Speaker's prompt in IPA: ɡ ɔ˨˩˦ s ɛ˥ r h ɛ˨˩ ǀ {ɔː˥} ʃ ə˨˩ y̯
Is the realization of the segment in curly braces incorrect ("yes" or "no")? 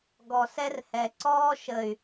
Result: no